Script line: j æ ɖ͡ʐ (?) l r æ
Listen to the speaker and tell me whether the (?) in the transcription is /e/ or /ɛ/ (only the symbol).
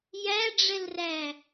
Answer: ɛ